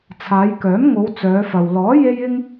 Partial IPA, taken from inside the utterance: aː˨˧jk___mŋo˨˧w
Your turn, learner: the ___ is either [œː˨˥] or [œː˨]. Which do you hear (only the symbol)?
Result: œː˨˥